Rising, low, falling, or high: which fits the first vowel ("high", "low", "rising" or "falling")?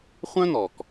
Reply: high